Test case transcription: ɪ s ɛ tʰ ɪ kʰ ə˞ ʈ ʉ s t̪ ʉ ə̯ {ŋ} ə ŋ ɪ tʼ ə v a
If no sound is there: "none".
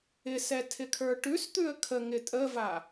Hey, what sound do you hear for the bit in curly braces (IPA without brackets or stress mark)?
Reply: kʰ